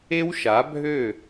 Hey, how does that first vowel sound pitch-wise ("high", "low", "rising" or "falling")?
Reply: high